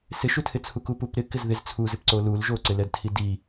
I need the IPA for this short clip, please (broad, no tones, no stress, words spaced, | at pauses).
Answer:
sɪʃutʰɪt͡sʰu kupupɾɪ kɪzðɪz t͡sʰuzɪpǀo lulʒoǀɪlɛd tʰidi